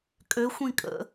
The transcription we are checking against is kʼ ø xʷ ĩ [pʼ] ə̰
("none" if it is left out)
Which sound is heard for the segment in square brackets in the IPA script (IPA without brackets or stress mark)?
kʼ